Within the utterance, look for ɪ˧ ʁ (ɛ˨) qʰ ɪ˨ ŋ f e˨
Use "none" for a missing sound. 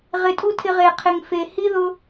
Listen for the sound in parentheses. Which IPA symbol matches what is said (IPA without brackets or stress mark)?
e˨